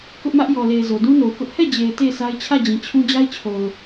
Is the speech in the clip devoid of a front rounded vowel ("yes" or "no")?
yes